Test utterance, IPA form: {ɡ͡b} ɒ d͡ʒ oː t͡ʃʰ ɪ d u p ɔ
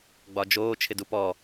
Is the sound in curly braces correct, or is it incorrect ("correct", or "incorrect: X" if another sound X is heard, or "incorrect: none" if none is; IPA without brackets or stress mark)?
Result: correct